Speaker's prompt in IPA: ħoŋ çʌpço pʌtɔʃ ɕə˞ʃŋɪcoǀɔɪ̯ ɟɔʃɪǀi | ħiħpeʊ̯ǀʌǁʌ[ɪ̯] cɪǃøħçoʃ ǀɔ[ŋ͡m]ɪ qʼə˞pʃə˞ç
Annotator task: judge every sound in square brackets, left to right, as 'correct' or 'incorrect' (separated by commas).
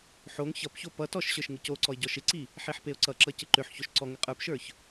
incorrect, incorrect